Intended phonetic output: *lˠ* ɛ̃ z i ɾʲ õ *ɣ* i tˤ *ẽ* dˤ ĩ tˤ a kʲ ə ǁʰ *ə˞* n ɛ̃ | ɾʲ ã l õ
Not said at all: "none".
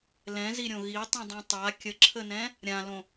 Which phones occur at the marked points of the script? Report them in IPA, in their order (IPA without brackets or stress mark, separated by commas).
l, ɣ, ĩ, ə